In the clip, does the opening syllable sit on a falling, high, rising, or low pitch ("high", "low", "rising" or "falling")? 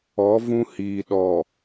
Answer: rising